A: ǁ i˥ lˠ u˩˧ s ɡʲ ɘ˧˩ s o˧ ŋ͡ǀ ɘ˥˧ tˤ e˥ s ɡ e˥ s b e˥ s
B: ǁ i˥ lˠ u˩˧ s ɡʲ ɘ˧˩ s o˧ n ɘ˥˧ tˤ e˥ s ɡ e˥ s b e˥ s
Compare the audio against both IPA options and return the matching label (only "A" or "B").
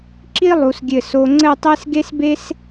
A